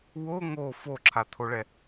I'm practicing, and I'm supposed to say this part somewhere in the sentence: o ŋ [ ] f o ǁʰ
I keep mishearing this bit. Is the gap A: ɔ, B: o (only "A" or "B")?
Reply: B